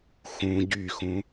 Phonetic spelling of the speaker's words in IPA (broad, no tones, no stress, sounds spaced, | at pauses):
x ũ ɟ y x ũ